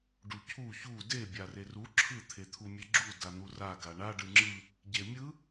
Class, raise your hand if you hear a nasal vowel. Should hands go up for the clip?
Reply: no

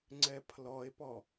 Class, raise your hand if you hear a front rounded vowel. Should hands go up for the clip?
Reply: no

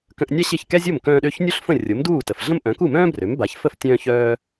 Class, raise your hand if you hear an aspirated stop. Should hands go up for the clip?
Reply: no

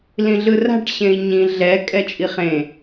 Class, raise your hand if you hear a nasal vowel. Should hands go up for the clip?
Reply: yes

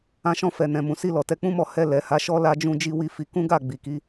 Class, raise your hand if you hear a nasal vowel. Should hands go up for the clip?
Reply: yes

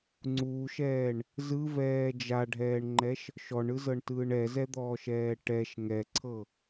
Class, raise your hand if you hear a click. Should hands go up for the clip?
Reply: yes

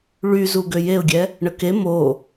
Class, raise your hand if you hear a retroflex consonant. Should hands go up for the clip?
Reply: yes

